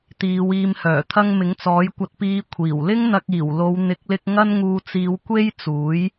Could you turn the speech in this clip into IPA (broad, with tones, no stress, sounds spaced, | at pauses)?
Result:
t̪ iː˨˧ w iː˨ m h œː˨˩ t̪ʰ ɐ˧ ŋ m ɪ˨˥ ŋ t͡s ɔː˨˥ j kʷ ɐ˧ t̚ p iː˧ kʷʰ iː˨˩ w l ɪ˥ ŋ n̪ ɐ˧ k̚ iː˨˩ w l o˨˧ w n̪ ɪ˨˥ k̚ l ɪ˧ k̚ ŋ ɐ˥ n ŋ uː˧ t͡s iː˨˧ w kʷ e˥ j t͡s uː˨˥ j